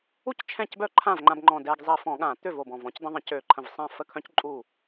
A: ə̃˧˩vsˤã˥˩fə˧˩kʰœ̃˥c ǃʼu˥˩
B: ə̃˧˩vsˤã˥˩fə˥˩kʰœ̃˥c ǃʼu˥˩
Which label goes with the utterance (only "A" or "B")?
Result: B